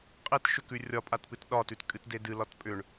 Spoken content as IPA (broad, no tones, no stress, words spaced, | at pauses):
qʼetʃʏkʉ rʲɒpʼatpɨt ɗɒtʉtkʼɨtde dɨlɒt pʼʏɳ